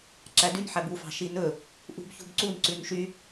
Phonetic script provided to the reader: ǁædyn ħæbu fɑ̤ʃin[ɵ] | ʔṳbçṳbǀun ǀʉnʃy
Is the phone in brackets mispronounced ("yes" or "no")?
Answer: no